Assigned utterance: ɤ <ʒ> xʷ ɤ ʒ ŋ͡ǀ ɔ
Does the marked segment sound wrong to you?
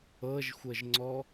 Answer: no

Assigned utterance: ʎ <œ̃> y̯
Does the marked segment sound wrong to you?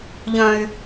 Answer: no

